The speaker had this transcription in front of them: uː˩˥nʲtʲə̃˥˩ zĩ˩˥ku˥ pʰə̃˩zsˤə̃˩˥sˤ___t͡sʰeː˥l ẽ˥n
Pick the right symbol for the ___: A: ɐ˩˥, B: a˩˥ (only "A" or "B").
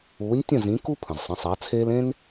B